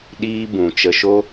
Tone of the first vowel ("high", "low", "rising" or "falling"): high